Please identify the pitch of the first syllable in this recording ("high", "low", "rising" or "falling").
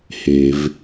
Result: low